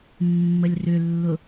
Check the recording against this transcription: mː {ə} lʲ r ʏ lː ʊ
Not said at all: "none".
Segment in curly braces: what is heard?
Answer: ə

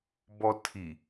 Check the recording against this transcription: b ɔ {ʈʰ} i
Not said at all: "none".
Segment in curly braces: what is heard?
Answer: tʰ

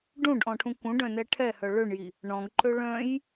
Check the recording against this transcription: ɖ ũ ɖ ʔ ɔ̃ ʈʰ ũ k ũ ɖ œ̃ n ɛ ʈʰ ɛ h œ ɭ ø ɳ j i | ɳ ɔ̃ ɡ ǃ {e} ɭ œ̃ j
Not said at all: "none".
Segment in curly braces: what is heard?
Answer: ø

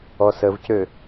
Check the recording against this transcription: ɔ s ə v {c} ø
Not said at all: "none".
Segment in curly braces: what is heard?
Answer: c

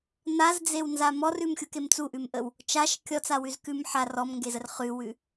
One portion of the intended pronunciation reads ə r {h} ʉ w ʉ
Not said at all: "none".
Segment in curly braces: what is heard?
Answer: χ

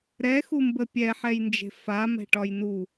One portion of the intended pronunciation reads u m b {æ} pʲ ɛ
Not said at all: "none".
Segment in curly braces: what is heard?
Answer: ə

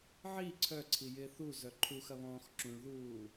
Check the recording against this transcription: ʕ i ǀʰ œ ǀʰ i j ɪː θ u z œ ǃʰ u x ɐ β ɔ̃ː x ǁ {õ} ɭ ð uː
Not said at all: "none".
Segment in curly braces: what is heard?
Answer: ũ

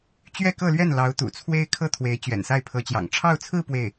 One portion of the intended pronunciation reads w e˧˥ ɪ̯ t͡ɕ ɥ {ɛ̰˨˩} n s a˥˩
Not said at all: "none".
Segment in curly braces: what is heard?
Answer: ɛ̰˨˩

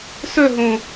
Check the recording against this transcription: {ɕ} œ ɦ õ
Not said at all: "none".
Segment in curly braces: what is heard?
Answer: s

